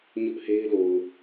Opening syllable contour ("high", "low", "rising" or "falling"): high